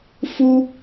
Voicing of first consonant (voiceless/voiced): voiceless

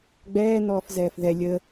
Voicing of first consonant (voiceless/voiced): voiced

